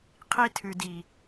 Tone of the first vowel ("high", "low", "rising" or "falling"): high